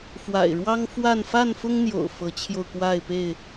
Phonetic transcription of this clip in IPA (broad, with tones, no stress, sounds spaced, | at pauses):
f w a̰˨˩ ɪ̯ ɻ w ɑ˦ ŋ f w a˥˨ n f a˥˨ n f ʊ˦ ŋ n̪ j o̰˨˩ ʊ̯ f ɤ˨˦ t͡ɕʰ j o˧ ʊ̯ k w a˥˨ ɪ̯ p e˥˨ ɪ̯